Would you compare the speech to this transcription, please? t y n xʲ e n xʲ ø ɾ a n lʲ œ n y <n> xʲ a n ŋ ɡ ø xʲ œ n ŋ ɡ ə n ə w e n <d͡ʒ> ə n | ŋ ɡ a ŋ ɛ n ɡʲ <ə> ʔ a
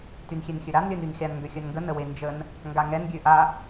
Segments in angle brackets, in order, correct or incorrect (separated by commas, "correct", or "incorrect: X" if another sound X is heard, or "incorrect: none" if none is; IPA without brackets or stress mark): correct, correct, incorrect: ø